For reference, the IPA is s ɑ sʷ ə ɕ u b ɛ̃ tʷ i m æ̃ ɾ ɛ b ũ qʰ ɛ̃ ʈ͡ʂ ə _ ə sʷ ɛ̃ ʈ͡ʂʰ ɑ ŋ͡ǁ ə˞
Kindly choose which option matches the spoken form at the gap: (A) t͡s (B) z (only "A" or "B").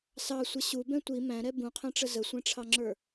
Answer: B